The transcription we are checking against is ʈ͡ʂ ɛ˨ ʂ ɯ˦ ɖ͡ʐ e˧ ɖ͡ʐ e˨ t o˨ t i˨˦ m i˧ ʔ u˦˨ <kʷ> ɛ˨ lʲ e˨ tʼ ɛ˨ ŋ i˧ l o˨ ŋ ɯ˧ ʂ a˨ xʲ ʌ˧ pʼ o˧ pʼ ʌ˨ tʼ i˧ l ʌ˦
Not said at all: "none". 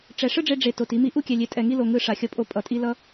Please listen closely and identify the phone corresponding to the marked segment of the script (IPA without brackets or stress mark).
kʲ